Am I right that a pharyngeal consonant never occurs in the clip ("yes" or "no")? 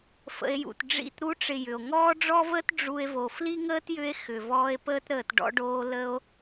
yes